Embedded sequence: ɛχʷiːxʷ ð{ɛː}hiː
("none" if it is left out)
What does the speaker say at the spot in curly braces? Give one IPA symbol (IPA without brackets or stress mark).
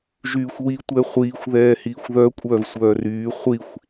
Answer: ɛː